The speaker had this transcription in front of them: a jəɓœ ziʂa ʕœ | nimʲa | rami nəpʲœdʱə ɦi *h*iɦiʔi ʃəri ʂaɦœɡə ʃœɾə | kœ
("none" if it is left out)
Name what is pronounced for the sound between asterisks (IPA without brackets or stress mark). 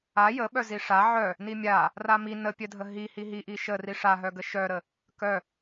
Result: h